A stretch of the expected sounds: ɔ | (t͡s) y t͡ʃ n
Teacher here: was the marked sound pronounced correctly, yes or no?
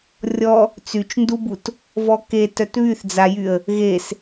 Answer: yes